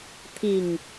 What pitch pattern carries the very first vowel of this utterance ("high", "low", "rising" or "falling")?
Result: low